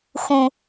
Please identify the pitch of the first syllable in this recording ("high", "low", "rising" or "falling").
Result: low